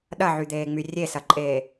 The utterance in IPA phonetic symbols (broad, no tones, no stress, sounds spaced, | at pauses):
ɗ ɐ ʕ y d̪ eː ŋ͡m y rʲ e s ɐ ǃʼ eː